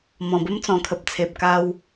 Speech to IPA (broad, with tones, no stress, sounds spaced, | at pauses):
m ɔ̃˨˩ b ə˦ m t͡s ɔ̃˨˩ kʰ ə˨ p̚ t͡sʰ e˨ p̚ k a˦ w